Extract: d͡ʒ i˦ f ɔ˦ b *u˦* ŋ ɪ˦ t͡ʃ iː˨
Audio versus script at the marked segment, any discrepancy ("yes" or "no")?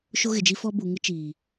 yes